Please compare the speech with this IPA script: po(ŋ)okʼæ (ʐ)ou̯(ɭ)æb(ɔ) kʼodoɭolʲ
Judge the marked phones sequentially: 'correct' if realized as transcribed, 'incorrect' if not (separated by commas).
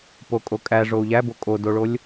incorrect, correct, incorrect, incorrect